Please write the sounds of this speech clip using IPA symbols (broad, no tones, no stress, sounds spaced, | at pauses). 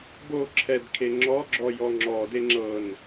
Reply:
b o ǁʰ ɛ d kʰ e ŋ͡ǁ ɔ ɡ͡ǁ ɔ j ɔ ŋ͡ǁ ɔ d e ŋ͡ǁ ɤ n